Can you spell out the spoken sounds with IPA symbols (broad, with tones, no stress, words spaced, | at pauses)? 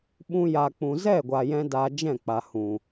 ɓũ˧ja˨ k͡pũ˨zɛ˦˨ɡʷa˨jɛ̃˧ daː˧d͡ʒɛ̃˦˨k͡pa˨ hũ˨